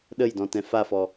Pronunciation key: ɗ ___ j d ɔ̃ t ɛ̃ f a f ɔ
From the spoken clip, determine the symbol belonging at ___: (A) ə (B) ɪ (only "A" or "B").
A